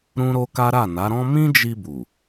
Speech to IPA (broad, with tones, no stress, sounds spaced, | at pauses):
ɾ ũ˦ ɾ o˦ k a˦ ɾ a˦˨ n a˨˦ ɾ ɔ̃˦ m ĩ˦ d͡ʒ i˧ b u˨